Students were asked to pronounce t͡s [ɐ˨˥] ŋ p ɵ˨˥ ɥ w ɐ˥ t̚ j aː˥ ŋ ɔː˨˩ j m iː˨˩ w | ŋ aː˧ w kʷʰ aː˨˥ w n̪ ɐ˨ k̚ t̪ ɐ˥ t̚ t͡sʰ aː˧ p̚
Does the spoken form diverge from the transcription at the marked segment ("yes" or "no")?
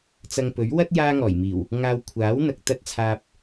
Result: yes